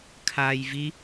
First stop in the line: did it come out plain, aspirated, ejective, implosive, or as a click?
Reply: aspirated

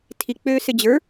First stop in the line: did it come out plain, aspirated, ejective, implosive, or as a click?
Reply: aspirated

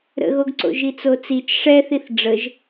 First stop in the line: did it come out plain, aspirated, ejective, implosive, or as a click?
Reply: plain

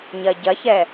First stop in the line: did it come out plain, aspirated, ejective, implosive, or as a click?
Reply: plain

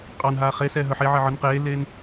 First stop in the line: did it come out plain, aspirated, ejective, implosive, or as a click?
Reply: ejective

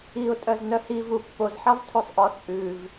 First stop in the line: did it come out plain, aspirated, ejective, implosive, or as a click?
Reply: ejective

